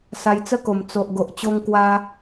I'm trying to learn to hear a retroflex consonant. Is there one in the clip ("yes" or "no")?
no